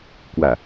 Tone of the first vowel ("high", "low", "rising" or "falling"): low